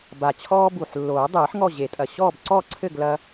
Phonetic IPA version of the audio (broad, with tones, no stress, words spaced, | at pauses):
ba˨˩t͡ɕʰɔː˦ bu˨˩ħ lːoː˨˩˦dˤɨː˨˩˦ħ ŋɔ˥˨ʑe˨˩˦tʼɐ˨˩ ɕɔː˥˨bǀɔ˥˨ǀʰɘ˥˨ɡ lɐ˦